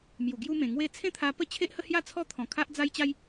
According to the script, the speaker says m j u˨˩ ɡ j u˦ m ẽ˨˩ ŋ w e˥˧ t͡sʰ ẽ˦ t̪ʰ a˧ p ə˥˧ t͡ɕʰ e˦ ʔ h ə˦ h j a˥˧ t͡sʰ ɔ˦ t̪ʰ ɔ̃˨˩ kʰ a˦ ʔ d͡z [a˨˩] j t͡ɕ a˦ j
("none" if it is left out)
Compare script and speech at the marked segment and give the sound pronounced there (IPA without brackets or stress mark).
a˦